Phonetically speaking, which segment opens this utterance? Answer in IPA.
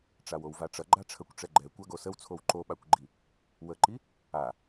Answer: ʈ͡ʂ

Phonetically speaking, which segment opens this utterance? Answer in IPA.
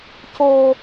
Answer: c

